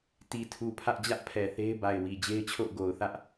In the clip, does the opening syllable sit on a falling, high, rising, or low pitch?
low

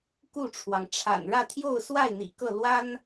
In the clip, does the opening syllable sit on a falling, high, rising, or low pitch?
falling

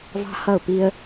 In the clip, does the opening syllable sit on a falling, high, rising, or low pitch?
high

